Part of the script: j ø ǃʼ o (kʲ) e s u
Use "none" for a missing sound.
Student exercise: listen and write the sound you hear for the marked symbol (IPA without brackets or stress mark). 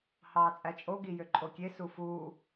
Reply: kʲ